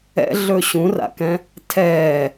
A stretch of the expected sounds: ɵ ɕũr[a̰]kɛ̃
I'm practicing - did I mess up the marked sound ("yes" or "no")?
no